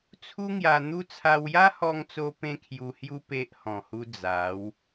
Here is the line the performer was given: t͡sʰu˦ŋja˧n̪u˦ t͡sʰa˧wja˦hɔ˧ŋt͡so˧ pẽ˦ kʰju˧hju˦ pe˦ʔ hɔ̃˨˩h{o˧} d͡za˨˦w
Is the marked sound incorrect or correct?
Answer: incorrect